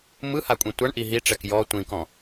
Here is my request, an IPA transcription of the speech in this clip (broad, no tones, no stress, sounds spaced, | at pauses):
m ɯ h a kʷʼ ĩ tʷ a ɳ ʔ i ɦ i ʈ͡ʂ ɛ k j ɔ tʷ ĩ k ɔ̃